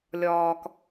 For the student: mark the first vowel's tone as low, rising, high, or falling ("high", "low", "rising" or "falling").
low